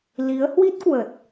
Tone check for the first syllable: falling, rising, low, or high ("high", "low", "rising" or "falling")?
rising